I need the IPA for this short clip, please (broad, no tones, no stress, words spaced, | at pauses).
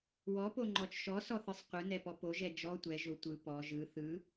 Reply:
wɔpoŋ͡ǃɔt͡ʃ ʃɔsɔθɯsˤ qʷɯnɛpɔ poʒɛ d͡ʒɔ tʷɛʒo tʷɯ pɔ ʒɯ θɯ